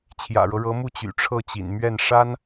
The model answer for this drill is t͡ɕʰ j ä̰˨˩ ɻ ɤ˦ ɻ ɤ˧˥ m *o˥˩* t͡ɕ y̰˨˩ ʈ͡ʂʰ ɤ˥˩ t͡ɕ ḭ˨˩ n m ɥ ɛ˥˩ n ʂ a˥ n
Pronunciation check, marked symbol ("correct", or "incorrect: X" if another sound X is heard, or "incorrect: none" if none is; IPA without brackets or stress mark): incorrect: u˥˩